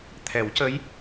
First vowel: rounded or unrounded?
unrounded